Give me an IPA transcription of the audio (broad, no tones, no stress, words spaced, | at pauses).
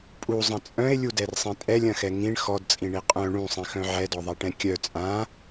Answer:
pʼuzˤɐ̃ t͡sʼœ̃e̯lʲudɛrsˤĩ tʼɛlʲɐ̃xɛ ŋĩɳ xɔdt͡sʼĩɳi qʼœ̃ ɳũsˤĩxœ̃ ʕɛdɔðˤaʈɛ̃ kʲœ t͡sʼã